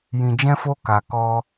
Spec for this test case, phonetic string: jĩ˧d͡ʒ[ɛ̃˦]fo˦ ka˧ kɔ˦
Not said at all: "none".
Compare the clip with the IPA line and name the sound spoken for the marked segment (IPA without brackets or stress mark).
ɛ̃˦